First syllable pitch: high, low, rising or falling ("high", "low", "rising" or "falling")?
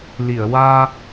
low